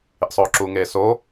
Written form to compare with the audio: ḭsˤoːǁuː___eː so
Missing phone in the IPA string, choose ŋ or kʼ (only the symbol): ŋ